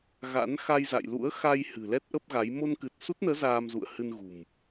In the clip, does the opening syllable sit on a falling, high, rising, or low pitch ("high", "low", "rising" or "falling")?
rising